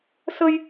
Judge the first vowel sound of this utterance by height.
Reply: mid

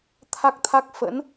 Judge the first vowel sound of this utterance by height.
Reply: low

